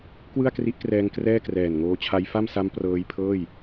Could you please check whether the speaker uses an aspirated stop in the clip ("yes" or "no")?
yes